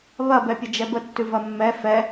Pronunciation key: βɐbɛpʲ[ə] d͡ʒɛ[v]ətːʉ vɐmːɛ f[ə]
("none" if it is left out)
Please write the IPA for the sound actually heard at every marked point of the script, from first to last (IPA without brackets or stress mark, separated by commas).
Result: ə, b, ɛ